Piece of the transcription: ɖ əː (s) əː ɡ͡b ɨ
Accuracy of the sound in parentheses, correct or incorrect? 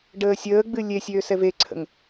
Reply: incorrect